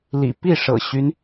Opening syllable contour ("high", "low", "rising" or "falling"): low